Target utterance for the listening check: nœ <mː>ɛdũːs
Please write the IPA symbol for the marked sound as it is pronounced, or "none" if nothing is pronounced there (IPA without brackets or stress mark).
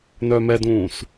m